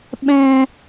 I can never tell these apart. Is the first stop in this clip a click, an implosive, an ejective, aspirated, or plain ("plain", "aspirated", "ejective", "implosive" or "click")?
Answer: implosive